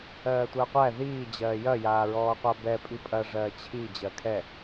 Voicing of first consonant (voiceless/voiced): voiceless